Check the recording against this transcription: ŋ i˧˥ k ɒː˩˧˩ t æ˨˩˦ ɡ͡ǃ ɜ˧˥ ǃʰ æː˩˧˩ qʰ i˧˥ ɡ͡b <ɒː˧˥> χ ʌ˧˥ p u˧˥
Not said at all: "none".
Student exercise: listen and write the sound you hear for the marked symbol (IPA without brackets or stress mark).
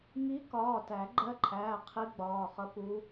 ɒː˩˧˩